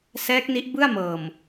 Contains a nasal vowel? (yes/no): no